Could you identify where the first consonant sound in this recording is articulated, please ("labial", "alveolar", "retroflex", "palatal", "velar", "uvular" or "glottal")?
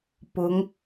labial